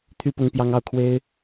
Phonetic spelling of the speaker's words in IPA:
t̪ʰ y˥ p ʊ˥ ŋ p j ɑ˥ ŋ ɑ˥˩ ʊ̯ kʰ w e˥ ɪ̯

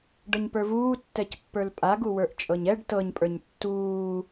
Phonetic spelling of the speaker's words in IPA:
ɖ ɤ ɲ p ə˞ v uː tː ɛ c pː ə˞ l pʼ a ɡ u w ə˞ ʔ t͡ʃʼ ɤ ɲ ɛ ɖ t ɤ ɲ pʼ ə˞ ɲ tː uː

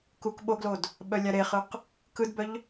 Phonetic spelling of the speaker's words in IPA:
k u k ɓ o ɡ l o d | ɓ œ lʲ a ɾ e χ ɯ q | k ɯ d b œ ʎ

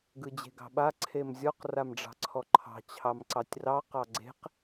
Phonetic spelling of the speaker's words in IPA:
ɡ ɯ d͡ʑ e̤ ɡ ɑ̤ ɓ a ǀʰ e m zʲ ɔ q r a m ɖ͡ʐ ɑ̤ ǀʰ ɔ ǃʰ ɑ̤ t͡ɕʰ ɑ m ǀ ɑ tʲ r ɑ q ɑ ɡ͡ǀ e̤ q

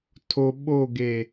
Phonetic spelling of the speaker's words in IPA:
tʰ o ɓ o ɡ e

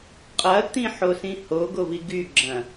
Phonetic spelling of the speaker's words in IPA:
qʼ ɐ t̪ ĩ ħ o s ĩ h o ɡ o v i ɡ y ɡ͡ǁ ɐ̃

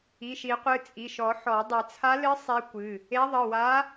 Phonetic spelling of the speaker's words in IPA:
i˩˧˩ ʃ i˨˩˦ qʷ ɨ˩˧˩ t͡sʼ i˩˧˩ ʃ ɔ˨˩˦ ħ ɔ˨˩˦ dˤ ɨ˨˩˦ t͡sʰ a˧˥ l ɨ˧˥ sˤ e˧˥ kʷ ɨ˩˧˩ | e˧˥ ðˤ ɨ˩˧˩ w a˧˥

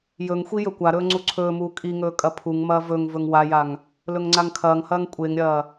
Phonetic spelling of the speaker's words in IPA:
j ɵ ŋ xʷ i j ɵ kʷ a ɾ ɵː ŋ͡ǀ u ǀʰ ɵː m uː kʼ i ŋ ɵː kʼ ɐ pʰ u ŋ m ɐː v ɵ ŋ v ɵ ŋ w a j a ŋ | l ɵ ŋ ŋ͡ǀ a ŋ kʰ ɐː ŋ h ɐː ŋ kʷʼ e ŋ ɾʲ ɐː

